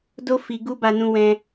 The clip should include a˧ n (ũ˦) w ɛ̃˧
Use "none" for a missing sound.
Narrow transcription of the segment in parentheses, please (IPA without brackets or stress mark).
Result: ũ˧